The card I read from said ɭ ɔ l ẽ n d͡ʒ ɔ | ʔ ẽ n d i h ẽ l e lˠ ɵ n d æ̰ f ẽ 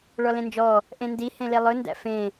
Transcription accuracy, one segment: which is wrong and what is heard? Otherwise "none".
none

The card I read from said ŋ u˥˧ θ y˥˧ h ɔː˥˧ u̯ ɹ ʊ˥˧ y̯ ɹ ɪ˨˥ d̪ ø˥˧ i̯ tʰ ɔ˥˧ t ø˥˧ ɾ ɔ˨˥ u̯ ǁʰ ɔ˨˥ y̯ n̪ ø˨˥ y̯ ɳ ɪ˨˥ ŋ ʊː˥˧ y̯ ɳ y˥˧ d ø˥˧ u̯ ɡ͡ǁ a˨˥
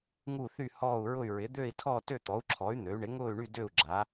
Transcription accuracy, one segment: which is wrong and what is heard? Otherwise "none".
ɾ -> t̪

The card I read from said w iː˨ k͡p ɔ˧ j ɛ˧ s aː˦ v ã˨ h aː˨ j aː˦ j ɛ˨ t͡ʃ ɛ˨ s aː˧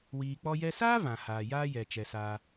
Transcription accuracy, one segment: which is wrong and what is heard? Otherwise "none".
none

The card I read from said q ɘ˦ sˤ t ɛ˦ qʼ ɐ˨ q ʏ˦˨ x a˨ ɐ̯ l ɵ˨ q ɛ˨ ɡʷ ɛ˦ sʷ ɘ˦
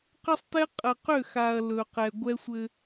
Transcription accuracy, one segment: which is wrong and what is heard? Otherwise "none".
none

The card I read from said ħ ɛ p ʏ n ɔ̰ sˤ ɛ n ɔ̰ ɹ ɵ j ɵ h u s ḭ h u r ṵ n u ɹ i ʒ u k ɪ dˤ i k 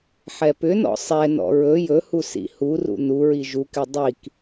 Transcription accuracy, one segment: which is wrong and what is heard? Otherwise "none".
none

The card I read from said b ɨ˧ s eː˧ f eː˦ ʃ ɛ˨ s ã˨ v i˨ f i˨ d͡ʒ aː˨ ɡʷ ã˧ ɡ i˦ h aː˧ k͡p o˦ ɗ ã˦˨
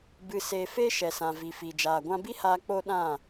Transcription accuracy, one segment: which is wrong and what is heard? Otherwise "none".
ɡ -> b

